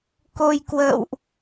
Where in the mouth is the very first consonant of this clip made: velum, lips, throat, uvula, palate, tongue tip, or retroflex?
velum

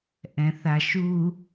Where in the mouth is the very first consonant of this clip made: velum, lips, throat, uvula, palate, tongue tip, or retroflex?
throat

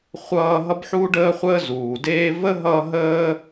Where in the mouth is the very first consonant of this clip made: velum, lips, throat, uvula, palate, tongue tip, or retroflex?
uvula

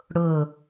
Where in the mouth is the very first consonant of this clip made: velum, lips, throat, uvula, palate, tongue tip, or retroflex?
retroflex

